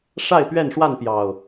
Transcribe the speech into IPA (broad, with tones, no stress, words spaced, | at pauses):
ʂa˥˨ɪ̯pɥɛ˥˨nʂwa˥˨n pjɑ˨˩ʊ̯